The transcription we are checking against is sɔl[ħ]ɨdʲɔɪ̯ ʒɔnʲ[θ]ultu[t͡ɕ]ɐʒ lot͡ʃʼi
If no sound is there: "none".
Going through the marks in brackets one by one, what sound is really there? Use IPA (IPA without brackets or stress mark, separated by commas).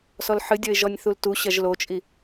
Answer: ħ, θ, ɕ